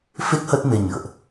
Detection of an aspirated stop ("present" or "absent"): absent